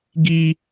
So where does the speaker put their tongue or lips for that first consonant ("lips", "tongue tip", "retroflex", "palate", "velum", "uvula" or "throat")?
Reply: velum